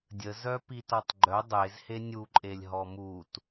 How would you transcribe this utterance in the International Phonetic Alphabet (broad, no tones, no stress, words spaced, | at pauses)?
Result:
dʲəzœ pitɔtˤɡ͡ǃœ dˤez henʲuǃʼelʲ ɦɔmut